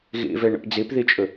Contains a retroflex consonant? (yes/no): yes